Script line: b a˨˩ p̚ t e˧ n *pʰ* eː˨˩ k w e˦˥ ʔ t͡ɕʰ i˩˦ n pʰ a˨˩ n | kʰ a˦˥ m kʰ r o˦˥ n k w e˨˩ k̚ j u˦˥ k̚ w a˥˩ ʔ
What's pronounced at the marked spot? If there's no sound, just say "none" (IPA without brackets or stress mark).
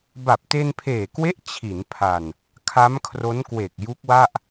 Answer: pʰ